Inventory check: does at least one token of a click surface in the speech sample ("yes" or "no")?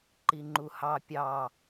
yes